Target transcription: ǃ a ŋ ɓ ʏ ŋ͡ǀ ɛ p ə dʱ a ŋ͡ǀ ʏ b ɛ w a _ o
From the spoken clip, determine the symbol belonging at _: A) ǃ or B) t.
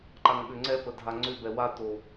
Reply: B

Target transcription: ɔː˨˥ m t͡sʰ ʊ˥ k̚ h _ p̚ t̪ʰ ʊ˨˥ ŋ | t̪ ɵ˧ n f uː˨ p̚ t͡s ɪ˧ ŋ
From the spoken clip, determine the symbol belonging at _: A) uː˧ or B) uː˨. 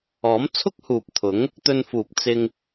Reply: B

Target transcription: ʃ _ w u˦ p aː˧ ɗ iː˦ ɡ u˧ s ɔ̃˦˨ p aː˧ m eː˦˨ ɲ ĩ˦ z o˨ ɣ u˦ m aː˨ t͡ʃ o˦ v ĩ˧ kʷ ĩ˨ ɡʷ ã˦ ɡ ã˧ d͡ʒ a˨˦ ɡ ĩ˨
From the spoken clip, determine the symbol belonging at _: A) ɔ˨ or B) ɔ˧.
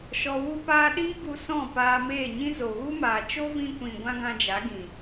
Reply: B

